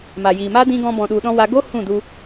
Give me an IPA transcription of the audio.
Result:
ma˨ jiː˨maː˦dĩ˧ ɡɔ̃˧ bɔ̃˨ɗu˨ɗɔ̃˧ wa˧ ɡo˦ hũ˦˨du˧

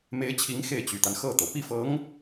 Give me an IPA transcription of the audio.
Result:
me˧˥ɪ̯t͡ɕʰi˧˥ŋ xe˥˩ɪ̯t͡ɕy˨˩t̪a˦n xɤ˥˩t̪ɤ˩ pi˥˩fɤ˧˥ŋ

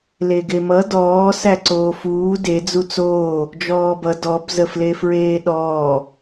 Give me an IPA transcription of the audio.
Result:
leɡemʌ dɔː sæǀoːfuː de d͡zut͡soː | d͡ʒɔːbʌ dɔb zəflefɹeːɗɔː

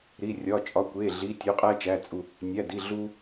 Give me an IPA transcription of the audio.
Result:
ɾi˩˧˩rʲɒ˩˧˩t͡ʃʼɒ˩˧˩kʷe˩˧˩ ɮi˩˧˩tʲo˨˦qʼæ˦ t͡ʃæ˩˧˩t͡sʼu˩˧˩ | nʲæ˩˧˩di˩˧˩ ɮu˦

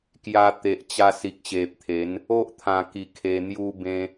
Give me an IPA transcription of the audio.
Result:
kja˧t̪e˨ʔt͡ɕa˧ si˨k̚ɕe˨p̚t̪ʰe˨˦n | o˦ʔt̪ʰã˨˩ki˨˩ kʰe˧n̪ju˦ bẽ˦

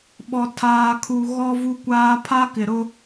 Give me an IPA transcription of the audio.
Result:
ɓɔ˨tʰaː˨kʰu˨ ɣɔ˦vu˦kʷaː˦ pʰa˦kɪ˨ɾʊ˦

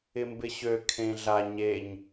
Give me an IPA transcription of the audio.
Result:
ɪmbɪɕø kʰẽɮa ɲeɲ

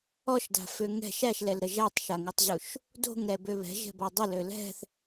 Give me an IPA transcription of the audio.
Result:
ɔʃda̤fø ŋɛ̤ʃ æʃlɛlɾə ʒætˤʃaŋutˤʑuʃ | do̤ŋɾɛbø βɛ̤ʒɛ̤bɔ dˤəlø lɛ̤θ

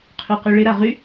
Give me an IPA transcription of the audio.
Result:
qʰyqyɭɪ ɾaʁy

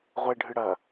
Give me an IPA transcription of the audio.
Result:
ʁʷeɖʱɨ ɽɐ

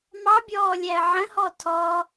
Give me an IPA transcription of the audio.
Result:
mɑbʲɔːlʲæə̯ ʕə̃hɔ tʰɔ

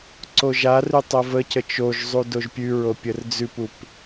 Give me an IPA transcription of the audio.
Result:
ǀoʒarʉ tˤovəcə t͡ʃoʒzˤu doʒpʲʉɹo pʲərd͡zʉpup

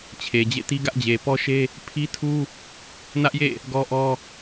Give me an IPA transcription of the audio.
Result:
t͡ɕʰe˨d͡ʑḛ˦˨ti˦ ɡä˦ʔd͡ʑe˨ pɔ˦ʃe˦ | pʰi˦tʰu˦ | nä˦ʔjḛ˦˨ | ɡɔ˦ʔɔ˦

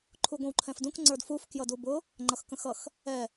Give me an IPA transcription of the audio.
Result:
ǃʰuɡʷə̃wǃʰɛ̃fdũk ŋ͡ǀə˞dfuf kjʌdubʊ | ŋ͡ǃʌxkə̃xʌx | ɛ

